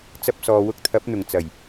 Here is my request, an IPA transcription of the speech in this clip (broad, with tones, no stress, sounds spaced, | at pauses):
t͡s ɐ˧ p̚ s ɔː˨ w ʊ˧ k̚ t̪ʰ ɐ˨˥ p̚ n̪ ʊ˨˩ ŋ t͡s ɐ˨˩ j